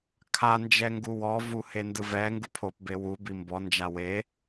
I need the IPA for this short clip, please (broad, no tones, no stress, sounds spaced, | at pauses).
kʰ a n d͡ʒ ɛ ŋ ɡ u w ɔ v u h e n d ɯ v ɛ ŋ ɡ u pʰ o p b e w u b i m b ɔ n d͡ʒ a w e